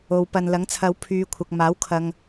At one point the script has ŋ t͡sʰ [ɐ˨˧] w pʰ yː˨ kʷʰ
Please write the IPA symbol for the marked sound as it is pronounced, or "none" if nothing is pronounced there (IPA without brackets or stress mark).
ɐ˨˧